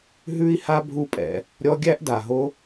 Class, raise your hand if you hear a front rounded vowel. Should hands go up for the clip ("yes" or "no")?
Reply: no